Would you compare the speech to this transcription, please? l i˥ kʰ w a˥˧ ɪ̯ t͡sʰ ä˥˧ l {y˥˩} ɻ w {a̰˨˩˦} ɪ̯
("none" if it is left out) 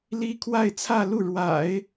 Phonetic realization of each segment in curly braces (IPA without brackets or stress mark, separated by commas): u˥˩, a̰˨˩˦